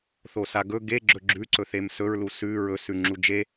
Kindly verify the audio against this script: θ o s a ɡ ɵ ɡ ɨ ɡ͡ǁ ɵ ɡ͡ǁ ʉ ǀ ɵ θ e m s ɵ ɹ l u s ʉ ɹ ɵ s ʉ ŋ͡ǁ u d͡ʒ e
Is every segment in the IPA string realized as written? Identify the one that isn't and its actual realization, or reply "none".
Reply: ɨ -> e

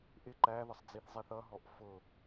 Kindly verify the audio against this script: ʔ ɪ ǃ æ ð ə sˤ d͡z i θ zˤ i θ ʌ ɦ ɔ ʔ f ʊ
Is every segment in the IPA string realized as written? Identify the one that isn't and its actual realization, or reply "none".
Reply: none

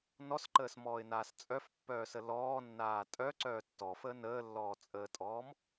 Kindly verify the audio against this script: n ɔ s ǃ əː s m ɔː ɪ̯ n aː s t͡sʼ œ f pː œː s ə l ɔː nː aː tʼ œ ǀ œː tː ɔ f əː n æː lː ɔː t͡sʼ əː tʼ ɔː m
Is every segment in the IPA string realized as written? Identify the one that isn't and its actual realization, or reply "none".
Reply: æː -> əː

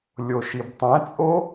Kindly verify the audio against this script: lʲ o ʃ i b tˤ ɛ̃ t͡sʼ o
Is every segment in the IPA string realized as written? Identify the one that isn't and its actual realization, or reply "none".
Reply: none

